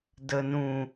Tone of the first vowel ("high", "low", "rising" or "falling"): low